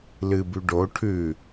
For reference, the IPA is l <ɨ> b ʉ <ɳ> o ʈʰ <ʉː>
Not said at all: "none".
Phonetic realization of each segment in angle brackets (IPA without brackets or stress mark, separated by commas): ɨ, ɖ, ʉ